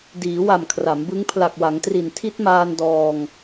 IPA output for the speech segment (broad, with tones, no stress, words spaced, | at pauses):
diː˩˦wa˨˩m kʰra˩˦mbɯ˦˥ŋ pʰla˨˩k̚wa˩˦ŋtri˨˩n tʰi˦˥t̚maː˧ndɔː˧ŋ